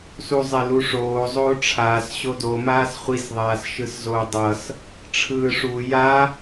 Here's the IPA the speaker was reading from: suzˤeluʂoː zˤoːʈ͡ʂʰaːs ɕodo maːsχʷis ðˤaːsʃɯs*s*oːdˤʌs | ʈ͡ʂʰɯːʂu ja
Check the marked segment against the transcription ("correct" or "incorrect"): incorrect